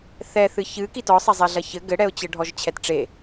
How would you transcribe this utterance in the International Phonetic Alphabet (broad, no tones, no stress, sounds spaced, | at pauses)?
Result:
θ ɛ θ ɨ ç ɨ k i t ɔ sˤ ɐ zˤ ɛ ɮ ɐ ç ɘ ɡ ɘ ɽ ɛ ʊ̯ t͡ɕ ɘ ɖʱ ɔ ʒ t͡ɕʰ ɛ t ʈ͡ʂ e